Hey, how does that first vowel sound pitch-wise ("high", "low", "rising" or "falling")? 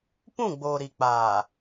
falling